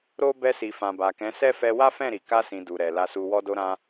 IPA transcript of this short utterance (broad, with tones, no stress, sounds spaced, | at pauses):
ɾ o˦ b ɛ˧ s i˨ f ã˨ b a˨ k ɛ̃˨˦ s ɛ˦ f ɛ˧ w a˦ f ɛ̃˦˨ ɾ i˨ k a˧ s ĩ˨ d u˨ ɾ ɛ˨ l a˧ s u˧ w ɔ˧ d o˧ ɾ ã˧